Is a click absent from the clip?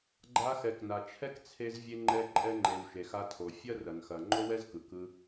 no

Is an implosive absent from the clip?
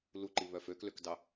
yes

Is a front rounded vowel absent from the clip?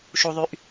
no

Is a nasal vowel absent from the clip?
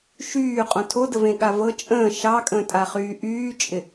no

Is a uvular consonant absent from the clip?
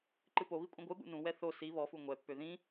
yes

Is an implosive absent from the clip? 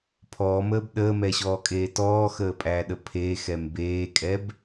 no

